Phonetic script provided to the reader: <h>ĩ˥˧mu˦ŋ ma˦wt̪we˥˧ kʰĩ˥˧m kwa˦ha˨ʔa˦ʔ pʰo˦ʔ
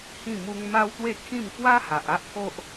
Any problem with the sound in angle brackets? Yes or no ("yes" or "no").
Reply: no